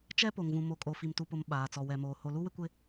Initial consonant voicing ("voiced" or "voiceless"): voiceless